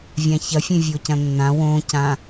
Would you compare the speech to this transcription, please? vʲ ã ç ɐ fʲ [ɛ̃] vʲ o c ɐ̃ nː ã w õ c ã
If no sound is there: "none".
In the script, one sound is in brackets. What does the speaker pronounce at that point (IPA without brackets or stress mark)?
ẽ